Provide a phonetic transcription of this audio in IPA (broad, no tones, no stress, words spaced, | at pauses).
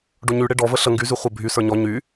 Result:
ɖoɲyɽe ɖɔvə ɬə ŋɡyzy χʷə bʱy sə˞ɲɔ ɲy